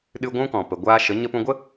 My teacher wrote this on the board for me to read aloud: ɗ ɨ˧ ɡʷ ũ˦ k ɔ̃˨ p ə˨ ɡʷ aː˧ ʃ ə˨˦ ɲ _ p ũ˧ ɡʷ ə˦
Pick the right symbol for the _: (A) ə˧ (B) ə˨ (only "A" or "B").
A